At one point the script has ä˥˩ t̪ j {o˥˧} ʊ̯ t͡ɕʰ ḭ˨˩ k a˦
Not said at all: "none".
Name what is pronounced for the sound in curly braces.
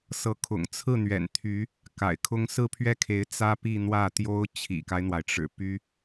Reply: o˥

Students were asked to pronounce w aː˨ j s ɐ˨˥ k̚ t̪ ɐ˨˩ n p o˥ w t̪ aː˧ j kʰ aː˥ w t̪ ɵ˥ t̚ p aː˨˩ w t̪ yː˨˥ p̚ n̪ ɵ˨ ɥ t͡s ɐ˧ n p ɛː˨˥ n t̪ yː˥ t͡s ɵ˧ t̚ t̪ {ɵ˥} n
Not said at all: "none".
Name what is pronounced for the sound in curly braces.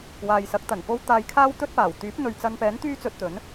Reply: ɵ˨˥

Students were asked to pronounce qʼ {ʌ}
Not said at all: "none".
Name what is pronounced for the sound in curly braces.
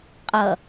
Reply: ʌ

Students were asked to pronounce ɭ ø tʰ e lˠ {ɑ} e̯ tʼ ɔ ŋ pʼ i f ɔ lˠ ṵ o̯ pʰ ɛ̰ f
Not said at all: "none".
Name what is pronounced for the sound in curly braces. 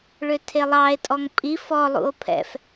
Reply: ɑ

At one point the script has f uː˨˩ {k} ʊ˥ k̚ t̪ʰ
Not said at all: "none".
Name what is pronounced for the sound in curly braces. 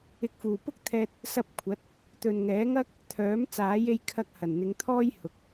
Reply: p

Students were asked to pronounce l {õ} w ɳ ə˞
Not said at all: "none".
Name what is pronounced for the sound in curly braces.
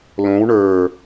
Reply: õ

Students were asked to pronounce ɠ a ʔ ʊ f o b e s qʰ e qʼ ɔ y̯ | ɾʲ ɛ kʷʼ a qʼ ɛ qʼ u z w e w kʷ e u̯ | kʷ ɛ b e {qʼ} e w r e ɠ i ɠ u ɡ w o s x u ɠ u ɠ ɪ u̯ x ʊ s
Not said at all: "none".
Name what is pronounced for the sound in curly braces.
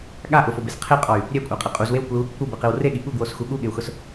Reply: q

